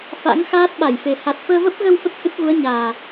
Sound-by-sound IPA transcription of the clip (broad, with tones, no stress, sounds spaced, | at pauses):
f a̰˧˥ ŋ x aː˦˥ t̚ ɓ a˧˩ j f e˨˩ h a˨˩ t̚ f əː˧ v ə˦˥ p̚ ɣ ə˧ w f ə˦˥ t̚ h ɨ˦˥ t̚ ɣ u˨˦ ə̯ ɲ aː˨˩